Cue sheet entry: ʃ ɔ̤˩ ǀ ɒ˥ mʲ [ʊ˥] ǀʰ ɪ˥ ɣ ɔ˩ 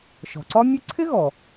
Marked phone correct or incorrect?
correct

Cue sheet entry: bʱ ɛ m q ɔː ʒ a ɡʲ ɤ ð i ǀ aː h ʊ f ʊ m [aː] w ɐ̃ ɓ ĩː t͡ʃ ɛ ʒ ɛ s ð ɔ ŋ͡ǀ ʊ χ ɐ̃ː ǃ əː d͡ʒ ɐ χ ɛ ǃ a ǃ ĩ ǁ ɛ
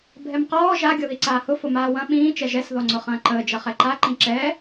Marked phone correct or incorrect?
correct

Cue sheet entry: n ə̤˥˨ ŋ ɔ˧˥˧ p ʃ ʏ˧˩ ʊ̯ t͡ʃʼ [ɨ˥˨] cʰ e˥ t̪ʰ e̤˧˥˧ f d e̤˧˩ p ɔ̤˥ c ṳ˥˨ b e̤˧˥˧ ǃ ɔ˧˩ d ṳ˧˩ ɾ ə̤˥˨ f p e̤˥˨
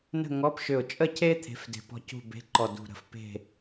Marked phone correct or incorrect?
incorrect: ə˥˨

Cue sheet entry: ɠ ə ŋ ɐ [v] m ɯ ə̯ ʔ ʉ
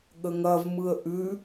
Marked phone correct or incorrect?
correct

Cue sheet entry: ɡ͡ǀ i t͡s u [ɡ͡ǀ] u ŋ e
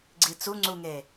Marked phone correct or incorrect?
incorrect: ŋ͡ǀ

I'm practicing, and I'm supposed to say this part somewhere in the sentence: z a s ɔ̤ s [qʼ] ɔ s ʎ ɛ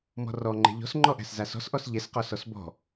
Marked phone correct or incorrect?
incorrect: ʔ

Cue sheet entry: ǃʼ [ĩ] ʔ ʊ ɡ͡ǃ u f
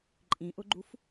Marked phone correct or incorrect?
correct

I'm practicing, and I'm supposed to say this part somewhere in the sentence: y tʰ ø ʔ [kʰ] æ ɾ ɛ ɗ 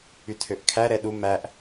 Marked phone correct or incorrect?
correct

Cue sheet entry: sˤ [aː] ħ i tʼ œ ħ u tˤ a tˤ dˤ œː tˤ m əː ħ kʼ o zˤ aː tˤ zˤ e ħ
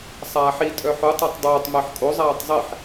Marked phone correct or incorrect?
correct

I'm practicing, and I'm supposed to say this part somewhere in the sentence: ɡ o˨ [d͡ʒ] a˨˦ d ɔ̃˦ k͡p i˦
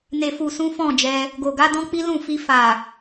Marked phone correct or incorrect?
incorrect: ɡ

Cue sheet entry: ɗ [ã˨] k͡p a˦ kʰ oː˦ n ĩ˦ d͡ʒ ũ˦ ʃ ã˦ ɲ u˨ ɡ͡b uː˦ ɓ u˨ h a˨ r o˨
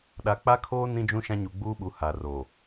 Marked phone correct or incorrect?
incorrect: a˨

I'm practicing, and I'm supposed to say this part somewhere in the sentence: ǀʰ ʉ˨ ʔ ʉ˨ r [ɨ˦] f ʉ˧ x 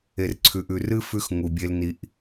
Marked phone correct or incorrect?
correct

